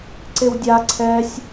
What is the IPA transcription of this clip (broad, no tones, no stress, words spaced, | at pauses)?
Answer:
ǀewdʲa ǀʰɛsʲ